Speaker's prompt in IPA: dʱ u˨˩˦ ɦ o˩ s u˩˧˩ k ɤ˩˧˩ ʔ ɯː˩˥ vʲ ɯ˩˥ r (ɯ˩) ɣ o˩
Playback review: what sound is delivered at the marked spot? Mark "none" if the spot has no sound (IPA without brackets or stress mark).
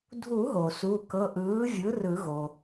ɯ˨˩˦